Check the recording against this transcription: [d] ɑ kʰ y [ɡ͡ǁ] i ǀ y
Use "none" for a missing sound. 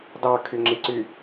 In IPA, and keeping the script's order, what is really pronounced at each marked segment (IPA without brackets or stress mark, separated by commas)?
d, ŋ͡ǁ